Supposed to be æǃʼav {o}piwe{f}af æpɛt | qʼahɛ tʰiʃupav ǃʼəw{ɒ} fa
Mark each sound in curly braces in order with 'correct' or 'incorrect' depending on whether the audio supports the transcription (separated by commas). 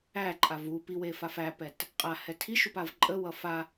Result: incorrect, correct, incorrect